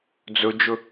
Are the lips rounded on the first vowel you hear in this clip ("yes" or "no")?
yes